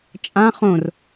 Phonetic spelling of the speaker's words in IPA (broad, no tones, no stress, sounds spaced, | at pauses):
t͡ʃʼ ã χ õ r